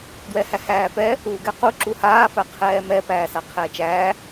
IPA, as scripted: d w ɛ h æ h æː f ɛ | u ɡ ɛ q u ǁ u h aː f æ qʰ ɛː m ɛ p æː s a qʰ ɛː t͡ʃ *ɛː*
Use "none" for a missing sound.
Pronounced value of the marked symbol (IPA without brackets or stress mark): æː